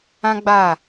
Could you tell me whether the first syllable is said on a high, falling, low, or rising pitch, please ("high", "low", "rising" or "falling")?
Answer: high